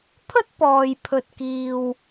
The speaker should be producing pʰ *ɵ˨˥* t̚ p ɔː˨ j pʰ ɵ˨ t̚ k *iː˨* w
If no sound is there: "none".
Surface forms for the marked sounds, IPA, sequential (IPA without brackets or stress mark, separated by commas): ɵ˥, iː˨